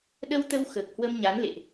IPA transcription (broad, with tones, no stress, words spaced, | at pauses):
ɗə˧wt̪ə˧w xəː˨˩k̚hwə˧mɲa˨˦n lḛ˧˨ʔ